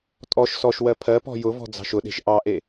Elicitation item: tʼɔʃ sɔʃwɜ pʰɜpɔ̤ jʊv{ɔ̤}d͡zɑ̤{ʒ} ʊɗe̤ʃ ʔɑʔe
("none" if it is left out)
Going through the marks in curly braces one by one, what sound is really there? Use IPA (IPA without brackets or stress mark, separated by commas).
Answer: ɔ̤, ʃ